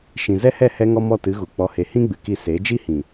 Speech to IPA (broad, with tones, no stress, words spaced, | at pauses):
ʃĩ˨zɛ˦hɛ˦˨ hɛ˦ ŋɔ˦mɔ˦˨tɨ˨˦ɣu˨ k͡pɔ˧he˧ hĩ˦ɡ͡bɨ˨ki˧ se˨˦ d͡ʒi˦hĩ˨